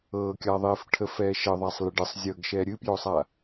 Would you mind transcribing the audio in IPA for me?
ɤ kʲ a ðˤ e f ʈʰ ə f ɛː ʃ ə ðˤ a sˤ l ɪ ɖ ə sˤ zʲ ɤ ɡ ʃ ɛ ɾʲ ɨ p j o sˤ a

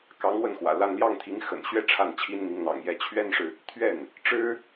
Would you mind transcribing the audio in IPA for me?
k ɑ˧˥ ŋ w ə˥˩ n x w ä̰˨˩ l a˥˧ n l j ɑ˥˩ ŋ t̪ʰ i˧˥ ŋ x ə̰˨˩ n ɕ ɥ ɛ˥˧ ʈ͡ʂʰ a˥˩ n t͡ɕʰ i˥ n n̪ i˧˥ ŋ n̪ ɑ̰˨˩ ŋ j ɛ˧˥ t͡ɕʰ ɥ ɛ˥ n ʂ ɻ̩˨ | t̪ʰ ɥ ɛ˥˩ n | ʈ͡ʂ ɻ̩˥

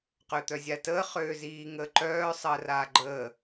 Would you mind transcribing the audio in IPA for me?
q ø t̪ œ zʲ a t əː χ øː z iː ŋ əː ǃ œː sˤ əː r aː ɡ͡ǃ əː

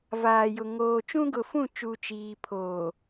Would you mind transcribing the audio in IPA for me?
v aː˨ j ʊ˨ ŋ oː˨ t͡ʃ ũ˦ ɡ ʊ˨ f ũ˦˨ t͡ʃ u˨ t͡ʃ iː˨ pʰ oː˨

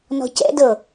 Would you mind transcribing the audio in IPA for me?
n ɔ̤ c ɛ̰ d ɤ

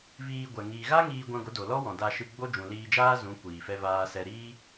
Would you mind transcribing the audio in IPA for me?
v iː˧ ɡʷ ɛ˨ ŋ iː˨ ɣ a˦ ŋ iː˧ ɡʷ ã˧ ɡʷ ə˨˦ d o˨ l ɔ˦ w ɔ̃˨ d a˧ ʃ ɨ˧ ɡ͡b o˦ d͡ʒ ũ˨ l iː˧ d͡ʒ aː˦ z ũ˨˦ kʷ iː˨ f ɛ˦ v aː˦ s ɛ˦ ɾ iː˦

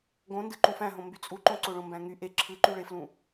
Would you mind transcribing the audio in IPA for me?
ɡ õ n d ɯ ǃ ũ f æ̃ ɦ õ m b y t͡sʼ u ǃ õ ǀ o ɭ õ m b æ̃ ŋ y ʔ e ǁʰ ɯ ǃ y ɭ e f l ũ

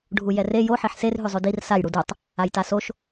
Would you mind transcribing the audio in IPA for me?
ɖʱ u j ɛ r e j o ħ i ħ s e r ɦ ʉ zˤ ʉ d i r s a j ɽ u d u tˤ | a j t a s o ʃ

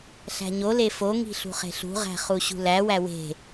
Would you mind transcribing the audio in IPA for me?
ɬ æ̤ ɲ o l e f o ŋ i̤ ɬ ṳ χ e̤ ɬ ṳ ʁ æ̤ χ u ɕ ṳ l æ w æ w e̤

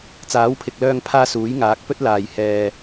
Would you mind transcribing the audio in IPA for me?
t͡s aː˨˥ w pʰ ɪ˨ k̚ l œː˧ ŋ pʰ aː˧ s uː˨˥ j ŋ aː˨˥ k̚ p ɵ˥ t̚ l aː˨˩ j h ɛː˨

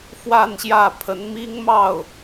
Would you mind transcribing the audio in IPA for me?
f w a˥˧ n ɕ j ä˥˩ pʰ ə˧˥ n m i˥ ŋ m ɑ˥˩ ʊ̯

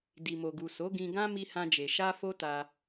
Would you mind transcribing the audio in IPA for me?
d i˨ m o˨ ɡ u˨ s o˨˦ ɡ ĩ˧ ɡ ã˦ m i˦ h ã˦ d͡ʒ e˧ ʃ a˦ f o˦ t a˧

